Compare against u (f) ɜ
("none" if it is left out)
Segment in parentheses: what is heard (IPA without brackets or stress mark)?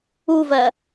v